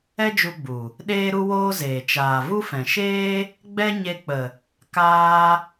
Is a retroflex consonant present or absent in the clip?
absent